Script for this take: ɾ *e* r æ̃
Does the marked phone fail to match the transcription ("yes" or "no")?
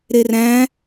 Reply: no